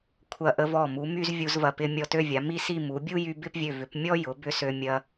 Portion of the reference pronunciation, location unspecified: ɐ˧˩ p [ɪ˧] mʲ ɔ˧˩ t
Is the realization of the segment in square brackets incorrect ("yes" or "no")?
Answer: no